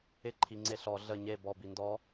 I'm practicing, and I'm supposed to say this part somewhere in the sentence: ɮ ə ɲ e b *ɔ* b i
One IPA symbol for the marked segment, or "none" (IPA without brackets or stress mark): ɔ